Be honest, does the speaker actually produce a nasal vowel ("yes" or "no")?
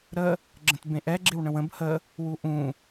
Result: yes